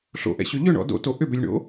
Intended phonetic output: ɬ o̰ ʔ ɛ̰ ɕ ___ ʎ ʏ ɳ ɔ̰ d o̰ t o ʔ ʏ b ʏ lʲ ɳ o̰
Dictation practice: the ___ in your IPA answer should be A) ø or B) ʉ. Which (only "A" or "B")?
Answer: A